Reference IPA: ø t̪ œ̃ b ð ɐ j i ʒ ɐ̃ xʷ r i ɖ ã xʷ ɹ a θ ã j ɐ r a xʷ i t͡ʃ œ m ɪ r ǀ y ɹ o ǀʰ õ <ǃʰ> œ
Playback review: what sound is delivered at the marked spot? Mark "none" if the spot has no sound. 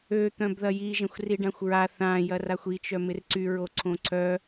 ǀʰ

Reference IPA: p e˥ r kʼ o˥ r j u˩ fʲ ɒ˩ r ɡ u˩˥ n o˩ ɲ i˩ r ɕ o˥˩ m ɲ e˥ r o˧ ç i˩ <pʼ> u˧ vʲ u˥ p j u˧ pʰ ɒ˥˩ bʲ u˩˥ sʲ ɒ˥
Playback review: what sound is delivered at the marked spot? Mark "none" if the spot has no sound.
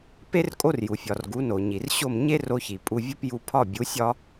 pʼ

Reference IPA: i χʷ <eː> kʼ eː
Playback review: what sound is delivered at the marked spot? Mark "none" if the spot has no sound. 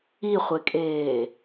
e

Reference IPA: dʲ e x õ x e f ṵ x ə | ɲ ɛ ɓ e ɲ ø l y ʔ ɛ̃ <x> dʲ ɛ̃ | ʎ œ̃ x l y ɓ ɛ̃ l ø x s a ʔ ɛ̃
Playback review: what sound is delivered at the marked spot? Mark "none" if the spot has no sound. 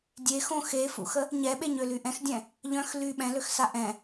x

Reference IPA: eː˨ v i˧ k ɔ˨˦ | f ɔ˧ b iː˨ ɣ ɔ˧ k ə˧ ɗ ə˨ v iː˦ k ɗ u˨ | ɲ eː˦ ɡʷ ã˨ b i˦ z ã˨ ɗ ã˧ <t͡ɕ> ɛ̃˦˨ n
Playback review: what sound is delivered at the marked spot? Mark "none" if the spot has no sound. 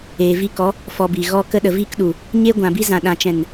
t͡ʃ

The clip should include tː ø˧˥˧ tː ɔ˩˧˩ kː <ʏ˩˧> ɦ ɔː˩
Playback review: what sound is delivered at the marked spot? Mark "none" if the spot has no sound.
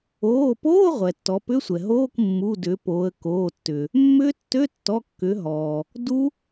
ʏ˩˧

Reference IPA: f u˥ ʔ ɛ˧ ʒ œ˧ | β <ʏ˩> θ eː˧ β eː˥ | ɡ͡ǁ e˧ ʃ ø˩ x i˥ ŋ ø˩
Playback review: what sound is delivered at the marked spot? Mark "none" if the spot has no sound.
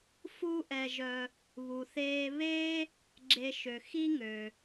u˩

